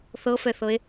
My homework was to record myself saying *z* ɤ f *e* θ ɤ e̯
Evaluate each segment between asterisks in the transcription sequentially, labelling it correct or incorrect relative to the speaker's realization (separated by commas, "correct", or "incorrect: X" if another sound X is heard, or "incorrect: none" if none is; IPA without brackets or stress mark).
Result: incorrect: θ, incorrect: ɛ